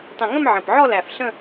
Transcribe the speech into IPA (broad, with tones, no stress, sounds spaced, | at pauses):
tˤ ə̃˨˩ ŋ ə̃˥˧ m ʕ ə̃˨˩ p ʕ ɔ˥˧ l æ˨˩ f ɬ ə̃˥˧